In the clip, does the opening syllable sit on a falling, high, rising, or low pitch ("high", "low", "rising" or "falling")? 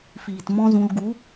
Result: low